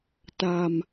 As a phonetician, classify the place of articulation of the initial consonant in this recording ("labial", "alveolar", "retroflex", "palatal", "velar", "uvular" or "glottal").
alveolar